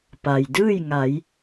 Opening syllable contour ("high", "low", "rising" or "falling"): low